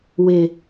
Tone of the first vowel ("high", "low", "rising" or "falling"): low